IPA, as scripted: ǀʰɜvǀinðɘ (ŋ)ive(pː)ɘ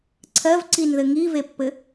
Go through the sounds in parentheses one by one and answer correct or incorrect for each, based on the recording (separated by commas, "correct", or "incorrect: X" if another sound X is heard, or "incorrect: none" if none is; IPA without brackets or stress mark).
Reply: correct, correct